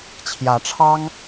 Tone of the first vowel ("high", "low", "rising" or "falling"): rising